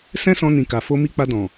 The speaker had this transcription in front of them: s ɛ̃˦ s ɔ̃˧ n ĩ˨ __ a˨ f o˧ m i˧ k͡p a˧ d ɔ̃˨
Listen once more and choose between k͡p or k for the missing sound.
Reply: k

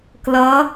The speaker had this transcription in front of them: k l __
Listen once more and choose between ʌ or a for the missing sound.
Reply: ʌ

